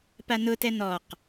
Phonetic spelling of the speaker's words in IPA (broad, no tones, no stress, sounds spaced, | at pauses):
p a n ʊ t ɛ n ɔ q